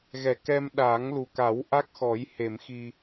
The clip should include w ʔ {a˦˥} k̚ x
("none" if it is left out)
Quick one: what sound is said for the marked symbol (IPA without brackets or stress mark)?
a˦˥